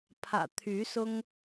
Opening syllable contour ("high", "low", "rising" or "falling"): low